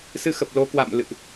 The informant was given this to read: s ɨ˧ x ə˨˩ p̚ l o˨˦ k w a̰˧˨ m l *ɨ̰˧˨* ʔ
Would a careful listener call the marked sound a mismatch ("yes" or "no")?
no